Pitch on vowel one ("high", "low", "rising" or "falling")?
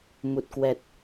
low